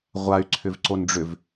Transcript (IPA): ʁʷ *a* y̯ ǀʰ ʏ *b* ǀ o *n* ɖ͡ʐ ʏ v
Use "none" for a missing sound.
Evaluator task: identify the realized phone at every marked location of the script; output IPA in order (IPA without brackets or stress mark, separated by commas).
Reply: a, v, n